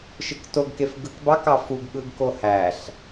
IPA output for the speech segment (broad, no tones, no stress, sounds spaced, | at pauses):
ʃ ɯ k t o ɡ k e f ɡ ɯ k b ɑ k ɑ f u ɡ ɠ ɯ ɡ k o h æ ɬ